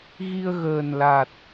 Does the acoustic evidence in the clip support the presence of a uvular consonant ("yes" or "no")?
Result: no